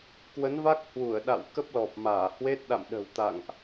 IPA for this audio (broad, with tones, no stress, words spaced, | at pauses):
kwə˨˦nva˦˥k̚ hwu˧˩ə̯ɗa̰˧˨w kə˦˥p̚lɔ˨˩p̚maː˧˩ hwe˦˥t̚ ɗa̰˧˨mɗə̤˨˩w t̪a̰˧˨ŋʔ